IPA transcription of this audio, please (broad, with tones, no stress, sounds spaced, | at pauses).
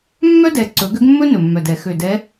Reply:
mː œ˥ d ɛ˨˩ ǀ ɵ˨˩˦ ɡ ø˧˥ ɡ mː ɵ˥ n ɵ˨˩ mː œ˨˩ d ɛ˨˩˦ x ø˨˩ d ɛ˧˥